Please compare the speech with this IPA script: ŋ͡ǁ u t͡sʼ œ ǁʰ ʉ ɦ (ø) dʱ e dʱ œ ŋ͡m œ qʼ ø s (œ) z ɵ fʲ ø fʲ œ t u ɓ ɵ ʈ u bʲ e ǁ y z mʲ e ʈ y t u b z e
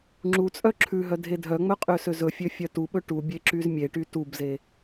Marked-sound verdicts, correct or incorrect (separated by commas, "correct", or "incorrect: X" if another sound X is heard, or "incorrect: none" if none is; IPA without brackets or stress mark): incorrect: œ, incorrect: ø